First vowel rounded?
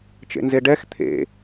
no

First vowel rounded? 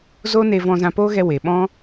yes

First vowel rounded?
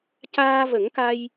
no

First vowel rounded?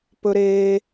yes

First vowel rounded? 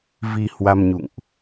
no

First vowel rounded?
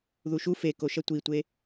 yes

